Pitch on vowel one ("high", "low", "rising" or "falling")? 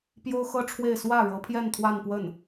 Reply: high